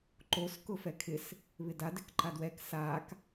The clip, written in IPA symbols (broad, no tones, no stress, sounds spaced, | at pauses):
ǃ o s k ʊ f ɛ kʰ ɪ s | β ɪ d a d ɪ k ǃ a d w ɛ k s a k